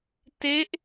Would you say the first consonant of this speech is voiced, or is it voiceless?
voiceless